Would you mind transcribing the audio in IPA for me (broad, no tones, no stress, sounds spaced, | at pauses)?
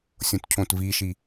sʲ õ t cʰ õ t v i ʃ i